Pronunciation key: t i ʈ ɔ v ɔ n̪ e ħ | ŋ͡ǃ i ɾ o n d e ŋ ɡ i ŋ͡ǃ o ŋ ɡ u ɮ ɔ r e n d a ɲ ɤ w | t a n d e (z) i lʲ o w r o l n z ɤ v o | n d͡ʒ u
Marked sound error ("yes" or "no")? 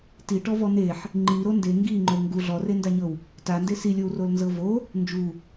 yes